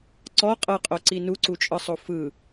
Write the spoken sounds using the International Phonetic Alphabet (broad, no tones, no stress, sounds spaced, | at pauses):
ǀ ɔ qʼ ɤ qʼ o ǀ i n u ǀ u t͡ʃʼ ɯ sˤ o f ɯ